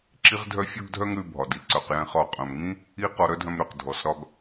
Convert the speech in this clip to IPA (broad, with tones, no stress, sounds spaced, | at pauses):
ǁ i˥ ʁ dʱ œ˥ fʲ ɔ˥ ɡ dʱ œ˥ ŋ ɾ ʉ˧ bʱ ɒ˩ d i˩ ǀ œ˩ q j ɛ̃˧ χ ɒ˧ qʼ œ̃˩ m ŋ ĩ˥ | i˥ q ɔ˧ ɾ œ˥ dʱ œ̃˧ m ɾ ø˩ q dʱ ɔ˩ s ɾ ɒ˧ ɡ